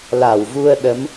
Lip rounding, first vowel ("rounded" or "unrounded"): unrounded